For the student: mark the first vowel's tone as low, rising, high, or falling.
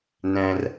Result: high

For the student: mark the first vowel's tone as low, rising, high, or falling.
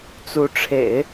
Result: rising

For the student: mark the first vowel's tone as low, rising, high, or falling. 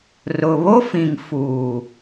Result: low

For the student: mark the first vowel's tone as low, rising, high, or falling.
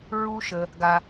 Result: high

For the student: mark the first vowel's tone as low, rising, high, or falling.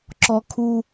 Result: high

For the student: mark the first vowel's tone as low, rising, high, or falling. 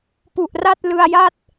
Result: low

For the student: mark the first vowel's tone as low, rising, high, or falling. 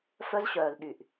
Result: high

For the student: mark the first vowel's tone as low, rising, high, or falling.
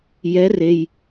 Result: rising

